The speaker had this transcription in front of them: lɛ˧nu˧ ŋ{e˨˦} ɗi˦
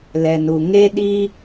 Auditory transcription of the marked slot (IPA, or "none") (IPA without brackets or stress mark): e˦